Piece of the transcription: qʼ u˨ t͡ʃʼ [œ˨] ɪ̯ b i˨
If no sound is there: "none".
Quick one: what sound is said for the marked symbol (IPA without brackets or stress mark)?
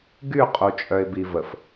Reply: œ˨